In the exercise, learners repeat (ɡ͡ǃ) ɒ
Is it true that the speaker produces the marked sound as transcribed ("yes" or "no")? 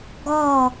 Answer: no